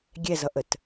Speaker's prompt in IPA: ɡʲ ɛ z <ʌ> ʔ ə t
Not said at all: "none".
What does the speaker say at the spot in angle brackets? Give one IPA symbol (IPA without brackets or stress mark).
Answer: ʌ